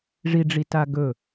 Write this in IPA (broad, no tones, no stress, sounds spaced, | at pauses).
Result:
ʐ i ɖ͡ʐ i t a ɡ ɵ